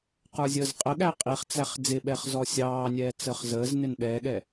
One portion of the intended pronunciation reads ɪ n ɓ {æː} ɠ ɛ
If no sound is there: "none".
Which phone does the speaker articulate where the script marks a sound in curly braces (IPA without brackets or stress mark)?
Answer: ɛː